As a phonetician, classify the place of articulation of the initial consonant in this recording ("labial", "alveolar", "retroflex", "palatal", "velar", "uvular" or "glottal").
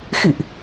velar